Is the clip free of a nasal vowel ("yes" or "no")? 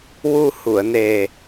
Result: yes